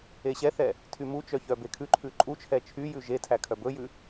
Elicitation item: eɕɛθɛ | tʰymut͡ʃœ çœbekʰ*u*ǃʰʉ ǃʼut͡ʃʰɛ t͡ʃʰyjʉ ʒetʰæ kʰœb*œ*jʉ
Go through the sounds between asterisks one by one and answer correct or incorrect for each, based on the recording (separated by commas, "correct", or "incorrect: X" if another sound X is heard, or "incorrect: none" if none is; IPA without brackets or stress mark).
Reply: incorrect: ʉ, incorrect: ɵ